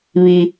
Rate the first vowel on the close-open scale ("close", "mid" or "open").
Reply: close